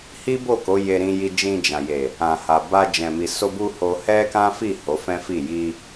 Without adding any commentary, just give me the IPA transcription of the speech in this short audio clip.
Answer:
h i˦ b o˦˨ k o˨˦ j e˧ ɾ ĩ˧ j i˧ d͡ʒ ĩ˧ d͡ʒ ã˨ j e˨ | ã˨ h a˨ b a˧ d͡ʒ ɛ̃˨ m i˨ s o˧ b u˧ h o˦ h ɛ˦ k ã˦ f i˦˨ h o˨˦ f ɛ̃˦ f i˦˨ j i˧

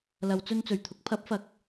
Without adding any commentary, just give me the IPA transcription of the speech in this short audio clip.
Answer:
l ɐ˨˧ w t͡s ɵ˧ n t͡s ɵ˨˩ ɥ t̪ʰ ʊ˨˥ k̚ pʰ ɐ˨˥ p̚ f ɐ˨ k̚

